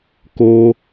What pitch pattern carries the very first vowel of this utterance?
high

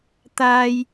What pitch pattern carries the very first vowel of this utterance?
high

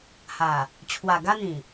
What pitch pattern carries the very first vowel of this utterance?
low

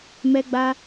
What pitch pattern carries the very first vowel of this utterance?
high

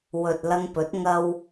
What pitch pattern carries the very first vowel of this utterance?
low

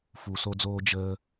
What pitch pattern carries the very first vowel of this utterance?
low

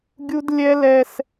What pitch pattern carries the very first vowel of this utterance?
high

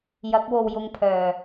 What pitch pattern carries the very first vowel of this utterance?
rising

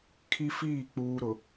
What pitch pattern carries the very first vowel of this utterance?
high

